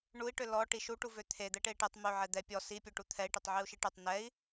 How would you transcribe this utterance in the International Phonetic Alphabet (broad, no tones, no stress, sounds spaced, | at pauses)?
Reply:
ɳ u i̯ ʈ ø l ɔ ʈ i ʃ u ʈ u v ø t̪ʰ e d̪ ɛ ʈ e i̯ ʈ e tˤ m ø ʕ ɛ d̪ ɛ pʲ ɔ s i pʲ ø ʈ u t̪ʰ ɛ i̯ ʈ e tˤ ʕ i u̯ ʃ i ʈ ø tˤ n ɛ i̯